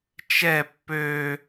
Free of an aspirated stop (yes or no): yes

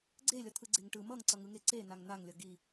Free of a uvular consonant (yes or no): yes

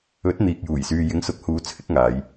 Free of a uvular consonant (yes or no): yes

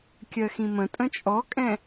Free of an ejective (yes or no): no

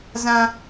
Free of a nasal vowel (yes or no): no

